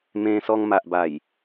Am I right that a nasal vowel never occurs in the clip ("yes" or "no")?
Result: no